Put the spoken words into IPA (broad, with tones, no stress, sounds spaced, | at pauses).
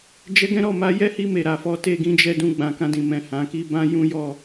d͡ʒ ɛ˧ ɡ ɛ̃˦ ɾ ɔ˦˨ m a˨˦ j ɛ˦ h i˧ m e˨ ɾ a˨ f ɔ˨˦ t e˦˨ ɡ ĩ˧ d͡ʒ ɛ˧ d ũ˧ ɡ͡b ã˨ k ã˧ d ĩ˨ m ɛ̃˨ h ã˨ k i˧ b ã˦ j ũ˦ j ɔ˦˨